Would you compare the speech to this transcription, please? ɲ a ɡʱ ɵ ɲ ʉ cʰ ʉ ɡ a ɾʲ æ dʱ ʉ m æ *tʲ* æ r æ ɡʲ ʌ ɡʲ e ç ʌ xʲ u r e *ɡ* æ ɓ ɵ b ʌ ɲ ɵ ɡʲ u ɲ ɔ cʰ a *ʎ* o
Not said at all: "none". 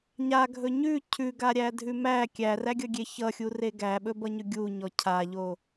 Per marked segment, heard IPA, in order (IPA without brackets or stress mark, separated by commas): kʲ, ɡ, ʎ